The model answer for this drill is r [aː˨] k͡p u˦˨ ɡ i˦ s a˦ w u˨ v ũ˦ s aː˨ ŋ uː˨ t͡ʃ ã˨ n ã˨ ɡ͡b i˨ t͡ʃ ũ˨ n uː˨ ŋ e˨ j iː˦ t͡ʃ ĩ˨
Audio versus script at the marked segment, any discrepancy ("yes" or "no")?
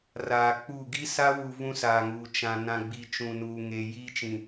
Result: no